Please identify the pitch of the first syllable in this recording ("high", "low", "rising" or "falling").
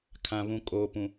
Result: low